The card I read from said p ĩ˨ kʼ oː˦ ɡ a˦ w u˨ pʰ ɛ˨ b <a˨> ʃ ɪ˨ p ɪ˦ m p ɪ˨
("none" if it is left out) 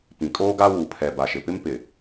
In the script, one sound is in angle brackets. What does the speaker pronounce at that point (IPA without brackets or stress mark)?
a˨